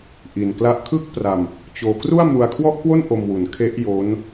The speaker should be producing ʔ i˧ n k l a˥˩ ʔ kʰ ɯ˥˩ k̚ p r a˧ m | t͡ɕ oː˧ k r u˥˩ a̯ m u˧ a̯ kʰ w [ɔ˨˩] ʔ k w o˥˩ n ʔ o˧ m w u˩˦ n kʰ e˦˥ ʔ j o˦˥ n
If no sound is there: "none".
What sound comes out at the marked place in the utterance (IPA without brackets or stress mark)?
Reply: ɔ˥˩